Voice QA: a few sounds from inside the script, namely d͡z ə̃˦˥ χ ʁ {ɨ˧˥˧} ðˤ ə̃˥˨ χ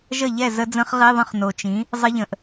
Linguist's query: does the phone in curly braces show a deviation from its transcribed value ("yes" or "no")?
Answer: yes